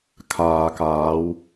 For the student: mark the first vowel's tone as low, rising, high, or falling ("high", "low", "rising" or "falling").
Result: low